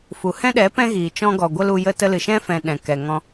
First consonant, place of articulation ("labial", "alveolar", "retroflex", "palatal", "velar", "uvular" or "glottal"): labial